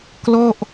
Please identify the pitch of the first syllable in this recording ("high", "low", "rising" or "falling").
falling